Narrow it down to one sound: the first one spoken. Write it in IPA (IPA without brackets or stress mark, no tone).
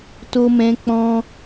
t